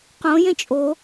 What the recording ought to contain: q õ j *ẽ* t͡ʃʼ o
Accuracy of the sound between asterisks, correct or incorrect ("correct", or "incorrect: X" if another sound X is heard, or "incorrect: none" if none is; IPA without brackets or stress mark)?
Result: correct